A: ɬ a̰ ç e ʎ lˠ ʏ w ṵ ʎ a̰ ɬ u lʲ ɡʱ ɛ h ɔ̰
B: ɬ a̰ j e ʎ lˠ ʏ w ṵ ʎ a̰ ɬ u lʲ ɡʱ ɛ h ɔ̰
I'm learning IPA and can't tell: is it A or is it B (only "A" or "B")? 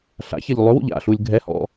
A